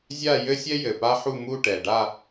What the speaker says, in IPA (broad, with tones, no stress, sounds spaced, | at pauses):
zʲ a˥˧ j ɘ˥ sʲ ɛ˥ j ɘ˨˩ p a˥ ħ u˥˧ m u˥˧ ʈ ɛ˨˩ ɖ a˥˧